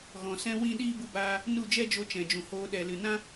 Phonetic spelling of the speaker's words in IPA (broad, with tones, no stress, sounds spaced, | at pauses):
ɣ ɔ̃˨ s ɛ̃˦ w ĩ˦ ɗ iː˦ b u˧ b aː˧ | n u˦˨ d͡ʒ ɛ˦ d͡ʒ o˧ t͡ʃ ɛ̃˨ d͡ʒ ũ˨ h oː˧ ɗ ɛ˨ l ɨ˨ n ã˦